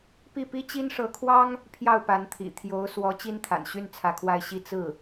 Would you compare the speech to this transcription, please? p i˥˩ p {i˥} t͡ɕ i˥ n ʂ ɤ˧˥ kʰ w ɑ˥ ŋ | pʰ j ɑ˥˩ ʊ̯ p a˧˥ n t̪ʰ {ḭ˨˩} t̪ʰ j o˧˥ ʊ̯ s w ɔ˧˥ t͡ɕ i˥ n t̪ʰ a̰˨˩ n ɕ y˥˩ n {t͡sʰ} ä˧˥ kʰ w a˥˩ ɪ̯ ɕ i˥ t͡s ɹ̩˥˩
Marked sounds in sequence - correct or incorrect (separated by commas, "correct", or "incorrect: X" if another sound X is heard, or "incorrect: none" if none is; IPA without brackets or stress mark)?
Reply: correct, correct, correct